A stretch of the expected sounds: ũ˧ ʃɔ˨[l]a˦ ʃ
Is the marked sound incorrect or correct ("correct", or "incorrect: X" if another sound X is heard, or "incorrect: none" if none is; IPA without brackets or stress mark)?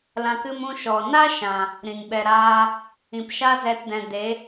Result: incorrect: n